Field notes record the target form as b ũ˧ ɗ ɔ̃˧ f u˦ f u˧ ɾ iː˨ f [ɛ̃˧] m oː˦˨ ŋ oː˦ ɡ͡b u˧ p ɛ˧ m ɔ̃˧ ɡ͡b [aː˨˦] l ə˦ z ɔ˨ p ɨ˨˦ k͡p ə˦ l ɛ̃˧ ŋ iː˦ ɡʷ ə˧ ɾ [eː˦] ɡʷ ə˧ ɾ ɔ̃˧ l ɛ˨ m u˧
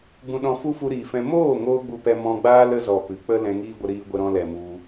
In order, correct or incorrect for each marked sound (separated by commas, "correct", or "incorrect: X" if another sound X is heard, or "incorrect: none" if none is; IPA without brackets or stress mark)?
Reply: correct, incorrect: aː˦, incorrect: iː˦